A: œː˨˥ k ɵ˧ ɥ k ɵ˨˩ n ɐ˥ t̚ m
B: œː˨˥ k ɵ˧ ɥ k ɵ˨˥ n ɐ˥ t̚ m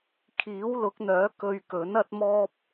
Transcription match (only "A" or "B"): B